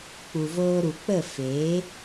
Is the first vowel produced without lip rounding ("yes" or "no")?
no